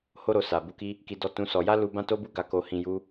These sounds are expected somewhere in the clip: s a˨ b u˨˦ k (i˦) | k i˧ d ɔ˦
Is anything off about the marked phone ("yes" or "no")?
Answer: no